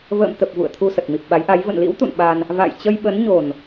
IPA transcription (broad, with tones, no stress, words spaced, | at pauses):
və̰ː˧˨mt̪ə˨˩p̚ vṵ˧˨ə̯t̪ʰu˧ sə˨˩t̚mi˨˩p̚ɓa˨˦jʔa˨˦j və̰˧˨nlḭ˧˥wt̪ṵ˧˨n ɓa˧n | va̰˧˨j t͡ɕə˧jɓə˨˦nɲo˨˩n